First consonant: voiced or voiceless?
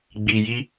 voiced